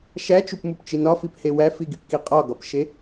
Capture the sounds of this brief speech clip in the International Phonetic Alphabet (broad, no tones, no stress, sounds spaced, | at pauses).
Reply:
ʃ æ t͡ʃ u p m u p t͡ʃ i n ɒ f i p h e w æ f i ɡ i p k i qʼ ɒ ɡ ɒ p ʃ e